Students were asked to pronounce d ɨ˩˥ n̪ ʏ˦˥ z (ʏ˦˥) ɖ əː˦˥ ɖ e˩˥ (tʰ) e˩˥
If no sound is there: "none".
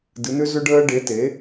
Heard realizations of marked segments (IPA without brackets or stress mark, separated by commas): ʏ˦˥, t